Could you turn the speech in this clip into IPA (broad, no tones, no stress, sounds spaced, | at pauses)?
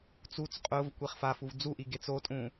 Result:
t͡s u t͡s qʼ ʊː v kʷ e χ f a f u v d͡z u ʔ i ɡ e t͡s o tʼ ũː